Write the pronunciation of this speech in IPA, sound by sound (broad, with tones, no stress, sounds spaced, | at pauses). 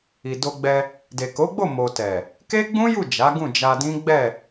i˨ d o˧ ɡ͡b ɛ˧ | d e˨ k o˨˦ ɡ͡b o˦˨ m o˨ t ɛ˨ | k e˦ ɡ͡b ũ˦ j u˦˨ d͡ʒ a˨˦ ɡ ũ˦˨ d͡ʒ a˧ d ĩ˦ ɡ͡b ɛ˦˨